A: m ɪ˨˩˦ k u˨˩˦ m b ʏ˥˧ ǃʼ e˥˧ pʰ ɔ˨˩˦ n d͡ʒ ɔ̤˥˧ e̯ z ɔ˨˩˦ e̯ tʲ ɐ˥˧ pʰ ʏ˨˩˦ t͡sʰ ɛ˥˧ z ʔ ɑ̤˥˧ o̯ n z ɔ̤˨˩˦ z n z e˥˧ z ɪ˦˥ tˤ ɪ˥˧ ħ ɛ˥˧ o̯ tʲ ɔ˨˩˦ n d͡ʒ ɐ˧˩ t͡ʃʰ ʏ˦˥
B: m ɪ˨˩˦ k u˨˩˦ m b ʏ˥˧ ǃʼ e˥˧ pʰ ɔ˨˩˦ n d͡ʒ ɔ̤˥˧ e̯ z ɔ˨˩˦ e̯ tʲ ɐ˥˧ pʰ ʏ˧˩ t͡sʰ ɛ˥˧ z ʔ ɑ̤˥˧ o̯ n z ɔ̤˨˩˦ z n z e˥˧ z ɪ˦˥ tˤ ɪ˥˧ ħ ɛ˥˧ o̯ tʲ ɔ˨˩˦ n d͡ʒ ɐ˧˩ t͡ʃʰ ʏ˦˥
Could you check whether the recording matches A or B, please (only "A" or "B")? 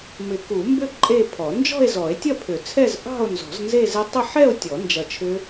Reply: A